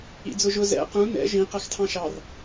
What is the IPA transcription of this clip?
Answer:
ḭ d͡z ʊ ʒ ʊ z ɛ̰ q ũ n ɛ̰ ʒ ĩ q æ x tʰ ɑ̃ ʃ ɑ r

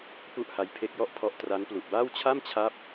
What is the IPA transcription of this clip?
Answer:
p u˥˩ ʔ h a˦˥ j pʰ e˦˥ k̚ j ɔ˦˥ ʔ pʰ ɔ˦˥ ʔ t r a˦˥ n p l u˨˩ ʔ b aː˥˩ w t͡ɕʰ a˥˩ m t͡ɕʰ a˦˥ p̚

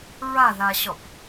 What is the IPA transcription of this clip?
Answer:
ɹ a ð a ɕ ɔ p

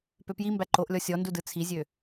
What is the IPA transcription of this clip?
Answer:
p ø p j i m b æ ǃ o ʔ lʲ ɔ sʲ ɔ n d u d ɯ t͡sʰ i zʲ ø

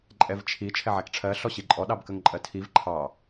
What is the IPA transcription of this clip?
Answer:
ǃʼ ɛ v t͡ʃʰ i t͡ʃʰ ɛ ʕ æ k ʈ͡ʂʰ ɜ ɬ ɔ ɕ i ǃʼ ɔ ɗ ɑ b k ə ŋ ǃʼ ɜ tʰ i v ǃʰ ɑ

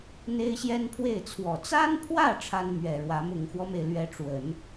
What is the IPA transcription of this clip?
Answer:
n̪ e˥ ɪ̯ ɕ j ɛ˥ n pʰ w e˥˩ ɪ̯ t͡sʰ w ɔ˨˩ t͡s a˥ n pʰ w ä˥˩ ʈ͡ʂʰ a˥ n m ɥ ɛ˨˩ ɻ w ä˧˥ m ʊ˨˩ ŋ x w ɔ˦ m e˩ ɪ̯ l ɥ ɛ˧˥ ʈ͡ʂ w ə˨˩˦ n

